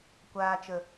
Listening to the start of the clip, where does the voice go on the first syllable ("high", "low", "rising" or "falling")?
low